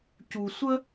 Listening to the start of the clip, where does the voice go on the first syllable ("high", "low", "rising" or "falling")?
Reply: low